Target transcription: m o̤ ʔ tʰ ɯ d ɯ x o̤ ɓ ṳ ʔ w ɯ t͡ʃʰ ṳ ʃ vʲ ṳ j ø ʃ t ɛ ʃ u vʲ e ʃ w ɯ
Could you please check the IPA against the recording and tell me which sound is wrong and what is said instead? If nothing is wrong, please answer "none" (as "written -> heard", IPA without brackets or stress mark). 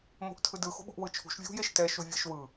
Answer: ø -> e